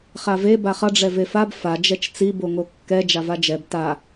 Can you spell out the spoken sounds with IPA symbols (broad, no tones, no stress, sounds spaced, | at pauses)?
χ a v e b a χ ʌ ɖ͡ʐ ɛ v e f a b f a d͡ʒ ɛ t͡ʃ t͡s i b o ŋ o kː ɛ d͡ʒ a v a d͡ʒ ɛ b t a